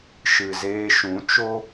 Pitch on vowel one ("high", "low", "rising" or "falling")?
low